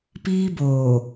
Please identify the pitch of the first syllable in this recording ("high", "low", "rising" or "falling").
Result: high